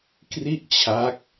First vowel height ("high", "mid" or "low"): high